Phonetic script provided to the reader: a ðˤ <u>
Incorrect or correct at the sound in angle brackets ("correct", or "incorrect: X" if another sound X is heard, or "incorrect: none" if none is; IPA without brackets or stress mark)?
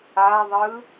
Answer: incorrect: ɯ